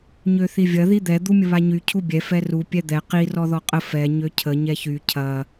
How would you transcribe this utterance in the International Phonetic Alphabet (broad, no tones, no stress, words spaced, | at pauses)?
ɲøθivʲɐ ðid̪ɛ d̪umʲəβaɲy cʰubʲɛ fɛru pʲɛd̪ɛ qi rɔðɔqʼə fɛ ɲøcʰə ɲɛçy cʰɐ